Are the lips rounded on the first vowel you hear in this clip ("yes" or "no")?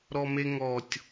yes